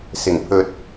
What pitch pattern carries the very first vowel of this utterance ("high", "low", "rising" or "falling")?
low